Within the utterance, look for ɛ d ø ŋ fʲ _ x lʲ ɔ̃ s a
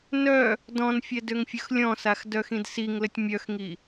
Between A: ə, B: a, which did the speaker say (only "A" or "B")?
A